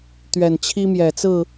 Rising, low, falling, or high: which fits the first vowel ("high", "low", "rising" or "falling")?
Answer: low